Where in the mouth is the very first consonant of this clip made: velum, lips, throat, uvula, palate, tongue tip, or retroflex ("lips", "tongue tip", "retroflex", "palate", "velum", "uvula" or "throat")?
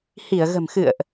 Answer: throat